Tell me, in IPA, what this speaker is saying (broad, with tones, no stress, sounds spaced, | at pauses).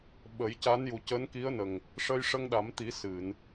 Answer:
ɓ ə˨˩˦ j c a˧˥ n j u˨˩ c əː˧˥ n k i˧˥ ə̯ n ə˨˩ ŋ | ʂ ə˧ j ʂ ə˧ ŋ ɗ a˨˩˦ m t̪ i˨˩˦ s ɨ˨˩˨ n